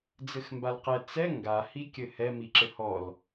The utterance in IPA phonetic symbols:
d͡zɘxmbalqɛ t͡sɛ ŋɡa hikʲɘhɛ miǁɘhɔl

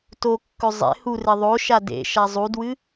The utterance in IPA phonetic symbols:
tokːɵ zˤḛ hure ðˤoʃa dḛʃa zˤudwɨ

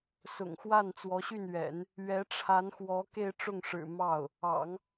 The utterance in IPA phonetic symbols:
sʊ̰˨˩ŋxwa˥˩n t͡swɔ˧˥ɕy˥˩nɥɛ̰˨˩˦n | ɥɛ˧˥ʈ͡ʂʰa˧˥nxwɔ˧˥ ke˥˧ɪ̯ʈ͡ʂʊ˥˩ŋʂɻ̩˨˩ mɑ˥˩ʊ̯ | ɑ̰˨˩˦ŋ

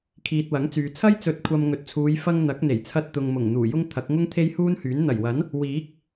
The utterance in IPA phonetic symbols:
kʰiː˨t̚wɐ˨˥ŋt͡syː˨ t͡sʰɐ˥jt͡sɵ˨˥t̚kʷʰɐ˨m ŋɵ˨t̚t͡sʰuː˨˧j fɐ˥ŋ n̪ɐ˨˥k̚ n̪e˨˩jt͡sʰɐ˧t̚ t̪ʊ˨ŋmʊ˨˩ŋ n̪uː˨˩jʊ˥ŋ t̪ʰɐ˨˥k̚ŋʊ˥ŋ t̪ʰe˥j huː˥nhyː˨˥n n̪ɐ˨˩jwɐ˨˥n | wiː˨˥k̚

